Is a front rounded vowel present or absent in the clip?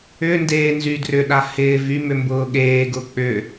present